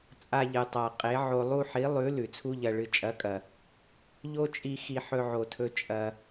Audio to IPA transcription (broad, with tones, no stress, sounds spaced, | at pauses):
t͡sʼ a˧ ʎ ɨ˨ tˤ a˨ qʼ e˨˦ ʕ o˧ lˠ u˦ ħ i˨˦ lˠ ʉ˨˦ l ʉ˨ t͡sʰ u˦ ʎ ɐ˧ ɭ ɨ˨ t͡ʃʼ ɐ˨˦ kʼ ɐ˨ | ʎ o˦ t͡ʃʼ i˧ x i˧ ħ ɵ˧ ʕ o˨ tʰ ɵ˧ t͡ʃʼ ɐ˧